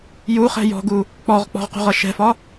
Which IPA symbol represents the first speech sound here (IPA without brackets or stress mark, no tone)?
j